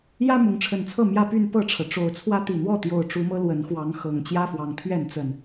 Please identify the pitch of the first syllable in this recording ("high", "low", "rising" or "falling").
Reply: high